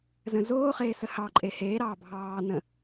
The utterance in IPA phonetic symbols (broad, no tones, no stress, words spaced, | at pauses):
zə̃zoːχeː səhɑǃʼe heːɾɑː bʱɑːnə̃